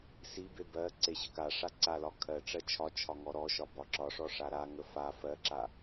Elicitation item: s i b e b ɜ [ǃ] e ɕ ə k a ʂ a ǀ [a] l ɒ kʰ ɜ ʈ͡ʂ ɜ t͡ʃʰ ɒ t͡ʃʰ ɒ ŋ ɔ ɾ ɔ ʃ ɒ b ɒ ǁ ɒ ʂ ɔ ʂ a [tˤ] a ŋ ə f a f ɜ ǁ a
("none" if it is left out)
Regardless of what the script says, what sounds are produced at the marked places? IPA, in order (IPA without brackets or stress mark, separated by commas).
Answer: ǀ, a, ɾ